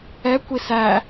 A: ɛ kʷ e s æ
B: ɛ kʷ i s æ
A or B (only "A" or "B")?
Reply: B